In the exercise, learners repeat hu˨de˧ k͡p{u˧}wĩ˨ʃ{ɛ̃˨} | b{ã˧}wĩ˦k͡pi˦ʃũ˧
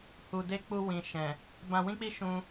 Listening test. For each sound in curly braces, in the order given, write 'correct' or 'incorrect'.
correct, correct, correct

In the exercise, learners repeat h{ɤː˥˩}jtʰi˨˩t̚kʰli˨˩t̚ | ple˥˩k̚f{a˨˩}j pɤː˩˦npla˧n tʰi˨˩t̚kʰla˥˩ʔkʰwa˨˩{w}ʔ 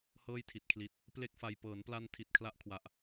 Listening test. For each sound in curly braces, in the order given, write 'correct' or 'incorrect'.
correct, incorrect: a˧, incorrect: none

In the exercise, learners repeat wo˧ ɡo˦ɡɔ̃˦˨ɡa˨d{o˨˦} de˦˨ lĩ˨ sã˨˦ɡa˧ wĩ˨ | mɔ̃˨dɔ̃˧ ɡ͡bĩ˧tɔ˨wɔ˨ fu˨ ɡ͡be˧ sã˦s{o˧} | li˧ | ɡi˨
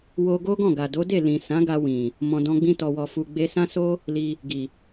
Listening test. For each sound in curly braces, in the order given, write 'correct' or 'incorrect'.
correct, incorrect: o˦

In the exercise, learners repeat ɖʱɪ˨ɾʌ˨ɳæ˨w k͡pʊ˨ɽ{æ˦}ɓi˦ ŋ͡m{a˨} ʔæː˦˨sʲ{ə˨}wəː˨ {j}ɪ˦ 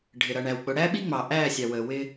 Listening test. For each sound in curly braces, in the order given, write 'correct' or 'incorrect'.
correct, incorrect: ɑ˨, incorrect: ɑ˨, incorrect: w

